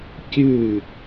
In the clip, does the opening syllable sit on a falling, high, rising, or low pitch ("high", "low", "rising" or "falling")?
falling